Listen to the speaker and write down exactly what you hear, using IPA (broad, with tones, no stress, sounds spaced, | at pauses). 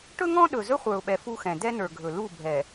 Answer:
ʈ ɵ˦ ŋ ɔ̃˦ ɗ ɵ˨ z ɵ˦ χʷ ə˞˨ ʊ̯ ɓ ɛ˨ f u˦ x ɛ̃˨ d ɛ˦ n ə˞˨ ɡʱ ɵ˨ l u˦˨ bʱ ɛ˨